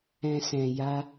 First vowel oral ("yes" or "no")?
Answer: no